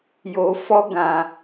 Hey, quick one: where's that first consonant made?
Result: palate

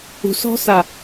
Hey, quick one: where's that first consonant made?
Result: tongue tip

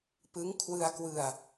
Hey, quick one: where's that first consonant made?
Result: lips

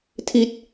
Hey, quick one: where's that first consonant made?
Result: tongue tip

